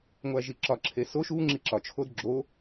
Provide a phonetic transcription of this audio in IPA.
ŋʷ æ ʒ i ǁ ɒ ǁʰ e s o ʃ u ŋ͡ǁ i ǁ ɒ t͡ʃʰ o d ɡ͡ǁ o

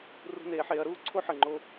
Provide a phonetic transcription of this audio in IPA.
r ṳ˧ n eː˩˧ ħ eː˩˧ ɐ̯ ɾ uː˥ ǀʰ o˥ ħ əː˩ ŋ͡ǃ o˧

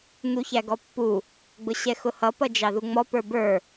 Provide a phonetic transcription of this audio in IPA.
n̪ u ç æ ɡ ɔ pː u | ɡ͡b ʊ ɕ ɛ x ʊ h ʌ p ʌ d͡ʒ ɑ ð u ŋ͡m ɔ p ə˞ b ə˞

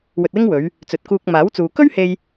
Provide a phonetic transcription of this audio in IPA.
w ɵ˧ t̚ w ɪ˥ ŋ w ɵ˨˧ ɥ | t͡s ɵ˨ t̚ k uː˧ k̚ m aː˨˥ w t͡s uː˨ k ɵ˥ ɥ h e˧ j

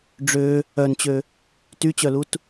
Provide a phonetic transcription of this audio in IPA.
ɖ͡ʐ ø | œ n t͡ɕ ø | t y t͡ɕ œ l u t

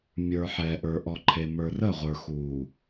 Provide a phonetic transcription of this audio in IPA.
mʲ ə˞˨ ħ ɛ˨ ʔ ə˞˨ ʔ ɔ˨ ǃʰ e˨ m ə˞˨ r ə˦˨ ʁʷ ə˞˨ x uː˨

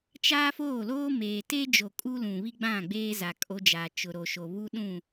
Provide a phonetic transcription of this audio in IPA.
t͡ʃ aː˦ f oː˦˨ l oː˦ m eː˨ t e˦ d͡ʒ o˨ kʼ u˦ l ũ˨ β i˦ ɡ͡b ã˦˨ ɡ͡b eː˦ z a˨ kʼ o˦ d͡ʒ aː˨ t͡ʃ ʊ˨ ɾ o˨ ʃ o˨ β u˦ ɗ ũ˦˨

